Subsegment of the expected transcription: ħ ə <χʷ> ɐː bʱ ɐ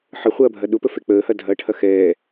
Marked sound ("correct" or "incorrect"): correct